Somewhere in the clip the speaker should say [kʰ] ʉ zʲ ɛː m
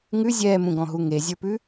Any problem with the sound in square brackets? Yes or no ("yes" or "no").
yes